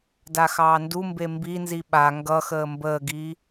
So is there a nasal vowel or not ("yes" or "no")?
no